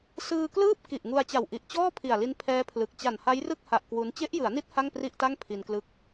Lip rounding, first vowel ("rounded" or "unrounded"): unrounded